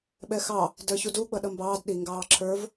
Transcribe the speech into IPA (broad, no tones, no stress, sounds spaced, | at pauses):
ɓ ɛ x ɑ | d ə˞ ç u d u ɡ͡b ʌ ɗ ʌ m b ɑː d ɗ i ŋ ɡ ɑː ǁʰ ə˞ v